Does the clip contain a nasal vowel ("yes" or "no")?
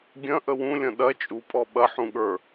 yes